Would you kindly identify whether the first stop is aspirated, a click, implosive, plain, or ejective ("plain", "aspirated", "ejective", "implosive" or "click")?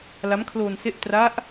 aspirated